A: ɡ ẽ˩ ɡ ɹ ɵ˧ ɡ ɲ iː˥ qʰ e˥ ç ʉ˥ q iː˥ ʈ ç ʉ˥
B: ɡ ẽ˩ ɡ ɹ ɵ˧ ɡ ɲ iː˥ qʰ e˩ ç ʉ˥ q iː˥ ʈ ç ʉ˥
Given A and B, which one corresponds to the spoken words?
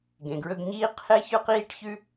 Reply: A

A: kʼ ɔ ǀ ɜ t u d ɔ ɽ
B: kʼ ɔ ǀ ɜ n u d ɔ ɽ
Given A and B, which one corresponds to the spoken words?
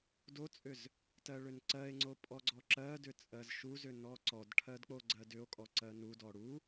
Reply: B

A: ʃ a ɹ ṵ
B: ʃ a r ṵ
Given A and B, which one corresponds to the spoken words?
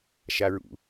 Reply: A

